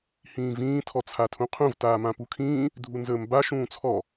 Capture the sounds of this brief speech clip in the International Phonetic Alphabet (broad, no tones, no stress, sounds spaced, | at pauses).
h ĩː v ĩː tʰ ɔ t͡sʰ a tʰ ũ qʰ ũ v t aː m ã p u kʰ ĩː | dʱ u n z əː m b a ʃ ũː t͡sʰ ɔ